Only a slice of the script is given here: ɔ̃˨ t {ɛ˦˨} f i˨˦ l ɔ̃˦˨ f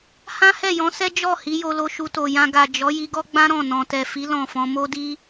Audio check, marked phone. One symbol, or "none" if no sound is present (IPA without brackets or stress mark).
ɛ˨